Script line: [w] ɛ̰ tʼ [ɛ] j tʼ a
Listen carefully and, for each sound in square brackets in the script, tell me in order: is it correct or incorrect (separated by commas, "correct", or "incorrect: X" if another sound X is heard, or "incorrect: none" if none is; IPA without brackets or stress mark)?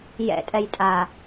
incorrect: j, correct